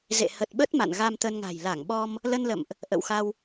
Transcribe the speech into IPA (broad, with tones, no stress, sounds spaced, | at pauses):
z ḛ˧˨ h ə˨˩ t̚ ɓ ə˦˥ t̚ m a̰˧˨ n ɣ a˧ m t̪ ə˧ n ŋ a̤˨˩ j l a˧˩ ŋ ɓ ɔ˧ m | l ə˧ n l ə̰˧˨ m ʔ | ʔ ə̰˧˨ w x a˧ w